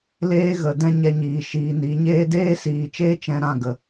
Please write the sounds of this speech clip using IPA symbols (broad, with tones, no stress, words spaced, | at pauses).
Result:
leː˦ɣə˨ dɛ̃˦ɲɛ˧ɲiː˨ ʃiː˨ ni˨˦ɲeː˦ deː˦siː˨t͡ʃeː˦ t͡ʃɛ̃˧ɾã˦˨ɡə˨